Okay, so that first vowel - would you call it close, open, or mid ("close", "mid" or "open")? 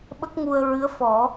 mid